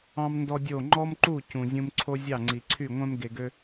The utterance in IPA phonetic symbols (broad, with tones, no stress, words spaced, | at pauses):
ɑ̃˦mndɔ˦dʲo˦˨ ŋ͡ǃɔ˦mǃu˦˨ cũ˨zʲũ˧m ǀʰo˧ zʲɑ˦˨ŋ͡ǀi˨ ǀʰy˦˨ŋʷɛ̃˦mɡe˧ɡø˦